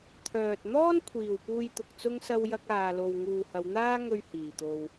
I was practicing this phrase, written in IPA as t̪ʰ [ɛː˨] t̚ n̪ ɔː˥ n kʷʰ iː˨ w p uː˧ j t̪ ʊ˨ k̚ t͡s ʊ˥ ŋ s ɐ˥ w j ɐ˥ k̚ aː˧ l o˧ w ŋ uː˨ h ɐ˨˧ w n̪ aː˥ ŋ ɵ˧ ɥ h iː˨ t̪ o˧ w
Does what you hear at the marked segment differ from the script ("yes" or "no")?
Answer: yes